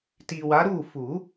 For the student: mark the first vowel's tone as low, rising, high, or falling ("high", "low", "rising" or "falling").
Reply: low